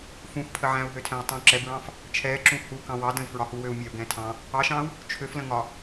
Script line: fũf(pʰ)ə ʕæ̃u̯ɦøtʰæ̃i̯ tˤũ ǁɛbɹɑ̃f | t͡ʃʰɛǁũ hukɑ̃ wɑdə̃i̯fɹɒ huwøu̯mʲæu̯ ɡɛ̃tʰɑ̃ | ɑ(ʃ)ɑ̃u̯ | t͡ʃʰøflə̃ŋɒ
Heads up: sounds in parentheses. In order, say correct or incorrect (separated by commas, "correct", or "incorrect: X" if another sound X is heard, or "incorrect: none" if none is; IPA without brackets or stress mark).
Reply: correct, correct